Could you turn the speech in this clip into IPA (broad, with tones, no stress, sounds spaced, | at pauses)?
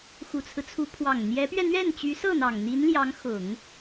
x u˨˩ t͡sʰ ɹ̩˦ t͡sʰ u˧˥ pʰ w ɑ˨˩ ŋ n̪ j ɛ˧˥ p ɥ ɛ˧ n̪ ɥ ɛ˥˩ n t͡ɕ y˧˥ s ɤ˥˩ n̪ ɑ˨˩ ŋ n̪ i˧˥ n l j ɑ˧˥ ŋ x ʊ˨˩˦ ŋ